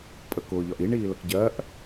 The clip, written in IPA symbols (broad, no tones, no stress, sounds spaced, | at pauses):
pʼ ə k ʊː ʎ ɒ ʔ i ɳ iː l ə k ɟ ɜ ʔ